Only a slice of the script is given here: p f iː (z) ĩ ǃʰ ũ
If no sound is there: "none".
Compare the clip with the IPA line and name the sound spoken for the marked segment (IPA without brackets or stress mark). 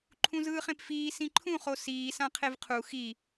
s